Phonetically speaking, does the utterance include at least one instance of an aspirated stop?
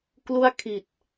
yes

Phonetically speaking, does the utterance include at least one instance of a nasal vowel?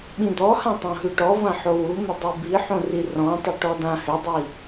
yes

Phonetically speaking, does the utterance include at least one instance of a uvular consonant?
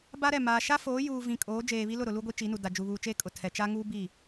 no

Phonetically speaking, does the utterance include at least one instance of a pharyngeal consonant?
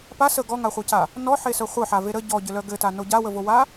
yes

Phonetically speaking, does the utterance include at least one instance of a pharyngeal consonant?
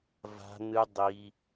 no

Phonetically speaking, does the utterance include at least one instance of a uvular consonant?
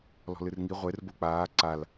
yes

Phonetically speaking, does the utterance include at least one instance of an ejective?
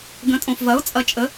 yes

